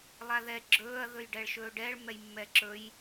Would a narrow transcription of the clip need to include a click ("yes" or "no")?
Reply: yes